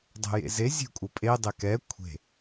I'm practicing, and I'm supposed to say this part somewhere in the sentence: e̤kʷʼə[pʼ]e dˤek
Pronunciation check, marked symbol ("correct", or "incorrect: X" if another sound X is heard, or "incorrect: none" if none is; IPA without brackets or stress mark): correct